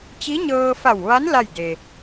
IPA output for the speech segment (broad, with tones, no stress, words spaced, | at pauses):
t͡ɕi˧˥ɲɤː˧fa˧˩wʋa˧˥n la˥˨jde˩